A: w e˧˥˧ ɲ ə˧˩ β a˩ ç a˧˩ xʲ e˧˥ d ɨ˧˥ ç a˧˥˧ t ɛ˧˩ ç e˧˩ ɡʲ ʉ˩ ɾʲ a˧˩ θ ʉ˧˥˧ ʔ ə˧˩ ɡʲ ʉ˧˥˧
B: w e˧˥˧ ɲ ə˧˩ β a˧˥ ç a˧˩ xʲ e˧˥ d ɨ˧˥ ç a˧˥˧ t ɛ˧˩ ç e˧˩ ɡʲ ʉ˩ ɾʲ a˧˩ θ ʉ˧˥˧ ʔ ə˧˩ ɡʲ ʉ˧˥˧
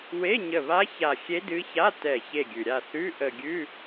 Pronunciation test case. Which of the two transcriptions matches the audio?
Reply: B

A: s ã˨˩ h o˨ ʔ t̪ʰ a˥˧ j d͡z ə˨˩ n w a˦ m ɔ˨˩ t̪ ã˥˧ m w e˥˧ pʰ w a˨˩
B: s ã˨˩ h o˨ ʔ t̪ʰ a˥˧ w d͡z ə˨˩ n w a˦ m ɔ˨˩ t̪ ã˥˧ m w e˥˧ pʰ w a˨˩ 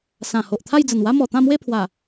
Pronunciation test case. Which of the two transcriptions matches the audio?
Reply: A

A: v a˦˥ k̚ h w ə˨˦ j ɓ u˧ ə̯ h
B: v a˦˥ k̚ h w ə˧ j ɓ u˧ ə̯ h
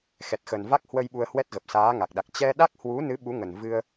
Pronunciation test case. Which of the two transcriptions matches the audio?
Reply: B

